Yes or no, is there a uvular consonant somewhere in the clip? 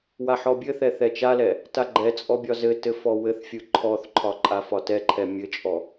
no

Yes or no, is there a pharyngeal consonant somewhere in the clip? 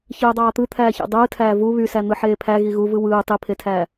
yes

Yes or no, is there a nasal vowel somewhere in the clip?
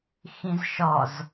yes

